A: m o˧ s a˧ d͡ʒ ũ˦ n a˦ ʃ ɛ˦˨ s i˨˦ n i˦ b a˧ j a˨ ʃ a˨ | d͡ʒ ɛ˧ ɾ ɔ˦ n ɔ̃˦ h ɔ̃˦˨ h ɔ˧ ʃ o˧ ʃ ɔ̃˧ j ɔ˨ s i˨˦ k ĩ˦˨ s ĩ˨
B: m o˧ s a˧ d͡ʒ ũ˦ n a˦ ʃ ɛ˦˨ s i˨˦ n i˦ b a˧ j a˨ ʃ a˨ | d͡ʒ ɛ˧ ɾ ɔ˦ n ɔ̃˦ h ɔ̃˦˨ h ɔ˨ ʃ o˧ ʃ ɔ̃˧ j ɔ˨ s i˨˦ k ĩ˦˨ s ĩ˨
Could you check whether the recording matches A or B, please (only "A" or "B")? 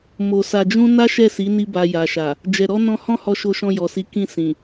A